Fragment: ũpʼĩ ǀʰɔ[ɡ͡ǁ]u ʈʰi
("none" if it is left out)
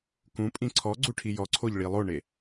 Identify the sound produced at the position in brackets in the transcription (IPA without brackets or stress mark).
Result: ɡ͡ǀ